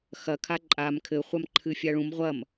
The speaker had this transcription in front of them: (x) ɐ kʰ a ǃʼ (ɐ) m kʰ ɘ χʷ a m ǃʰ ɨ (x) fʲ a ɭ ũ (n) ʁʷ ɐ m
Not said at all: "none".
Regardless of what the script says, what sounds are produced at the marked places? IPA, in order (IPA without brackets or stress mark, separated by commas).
x, a, none, m